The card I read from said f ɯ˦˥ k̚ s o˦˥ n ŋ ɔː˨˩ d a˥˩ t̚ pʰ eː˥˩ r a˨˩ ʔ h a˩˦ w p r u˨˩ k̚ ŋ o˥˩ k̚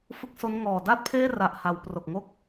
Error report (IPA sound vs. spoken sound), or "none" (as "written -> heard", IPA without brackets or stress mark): u˨˩ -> o˨˩